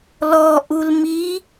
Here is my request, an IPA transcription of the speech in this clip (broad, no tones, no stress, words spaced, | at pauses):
lɔ ʔulmi